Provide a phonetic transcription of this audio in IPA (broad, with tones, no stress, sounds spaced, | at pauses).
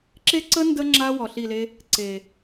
ǁ e˦ ǀ ə˦ n d ə˦ ŋ͡ǁ a˦ w ɔ˨ ɬ i˦˨ l e˦ | ǀ e˨